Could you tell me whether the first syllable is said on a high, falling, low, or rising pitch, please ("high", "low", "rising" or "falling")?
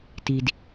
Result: low